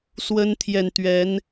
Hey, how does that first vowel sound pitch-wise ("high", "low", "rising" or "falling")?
high